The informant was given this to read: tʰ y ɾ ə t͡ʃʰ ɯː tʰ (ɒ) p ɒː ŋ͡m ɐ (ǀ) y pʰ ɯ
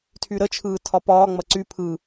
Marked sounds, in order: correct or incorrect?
correct, correct

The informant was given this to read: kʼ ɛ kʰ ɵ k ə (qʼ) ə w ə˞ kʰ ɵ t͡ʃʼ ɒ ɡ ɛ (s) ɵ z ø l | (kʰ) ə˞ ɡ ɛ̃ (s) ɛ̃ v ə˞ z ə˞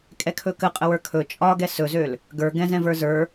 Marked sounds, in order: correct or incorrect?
correct, correct, incorrect: ɡ, incorrect: z

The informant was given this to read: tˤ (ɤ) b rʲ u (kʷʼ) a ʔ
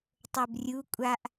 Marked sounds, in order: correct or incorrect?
correct, correct

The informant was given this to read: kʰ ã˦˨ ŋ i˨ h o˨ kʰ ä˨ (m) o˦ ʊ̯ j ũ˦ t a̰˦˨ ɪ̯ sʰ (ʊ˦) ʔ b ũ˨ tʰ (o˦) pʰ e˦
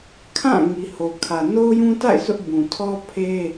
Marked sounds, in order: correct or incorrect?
incorrect: n, correct, incorrect: ɔ˦

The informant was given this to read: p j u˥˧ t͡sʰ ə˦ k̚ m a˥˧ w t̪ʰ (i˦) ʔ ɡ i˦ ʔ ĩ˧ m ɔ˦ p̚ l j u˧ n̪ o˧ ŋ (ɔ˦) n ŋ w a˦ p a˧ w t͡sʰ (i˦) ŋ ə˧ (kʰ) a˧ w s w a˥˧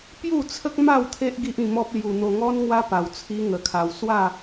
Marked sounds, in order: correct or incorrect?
incorrect: e˦, correct, correct, correct

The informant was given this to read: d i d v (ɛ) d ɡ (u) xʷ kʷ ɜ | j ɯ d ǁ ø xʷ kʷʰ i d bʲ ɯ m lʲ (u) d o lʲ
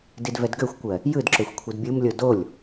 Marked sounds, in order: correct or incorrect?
correct, incorrect: ø, incorrect: o

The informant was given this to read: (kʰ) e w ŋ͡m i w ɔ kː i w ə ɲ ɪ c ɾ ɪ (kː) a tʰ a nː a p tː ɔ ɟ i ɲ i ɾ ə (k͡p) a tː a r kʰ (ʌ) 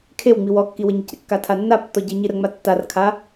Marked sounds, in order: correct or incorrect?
correct, correct, incorrect: ŋ͡m, incorrect: a

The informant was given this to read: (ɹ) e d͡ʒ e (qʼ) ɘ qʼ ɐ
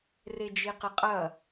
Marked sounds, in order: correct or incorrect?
incorrect: r, incorrect: q

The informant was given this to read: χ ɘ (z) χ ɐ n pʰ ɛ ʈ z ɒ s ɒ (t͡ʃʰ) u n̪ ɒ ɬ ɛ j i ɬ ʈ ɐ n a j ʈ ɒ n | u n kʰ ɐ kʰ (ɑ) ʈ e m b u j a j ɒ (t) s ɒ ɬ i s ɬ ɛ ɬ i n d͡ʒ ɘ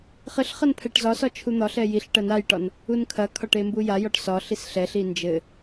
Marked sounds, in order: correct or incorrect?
incorrect: ɬ, correct, incorrect: ɒ, incorrect: ʈ

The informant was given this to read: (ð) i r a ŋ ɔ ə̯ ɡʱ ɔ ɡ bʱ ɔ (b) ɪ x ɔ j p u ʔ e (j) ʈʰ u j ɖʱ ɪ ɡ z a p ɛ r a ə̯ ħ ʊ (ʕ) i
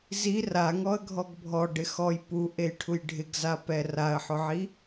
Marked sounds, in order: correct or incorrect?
incorrect: z, incorrect: ɖ, correct, correct

